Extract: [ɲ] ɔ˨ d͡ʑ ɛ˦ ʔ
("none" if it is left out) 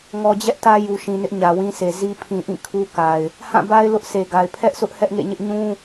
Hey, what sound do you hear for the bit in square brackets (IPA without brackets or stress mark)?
ŋ